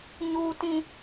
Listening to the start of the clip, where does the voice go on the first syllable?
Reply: high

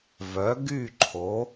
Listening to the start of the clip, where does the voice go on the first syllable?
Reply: rising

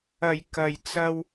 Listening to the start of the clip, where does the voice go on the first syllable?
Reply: low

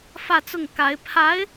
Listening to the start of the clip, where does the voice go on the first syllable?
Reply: falling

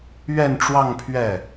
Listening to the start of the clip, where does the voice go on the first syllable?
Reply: falling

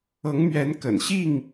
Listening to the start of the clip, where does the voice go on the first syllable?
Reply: rising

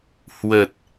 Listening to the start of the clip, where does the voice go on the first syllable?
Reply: low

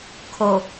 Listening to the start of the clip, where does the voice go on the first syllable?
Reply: low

